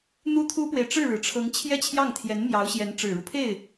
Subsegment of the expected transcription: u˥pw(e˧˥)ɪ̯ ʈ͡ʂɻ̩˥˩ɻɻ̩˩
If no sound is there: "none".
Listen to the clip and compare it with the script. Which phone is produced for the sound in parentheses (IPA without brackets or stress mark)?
e˨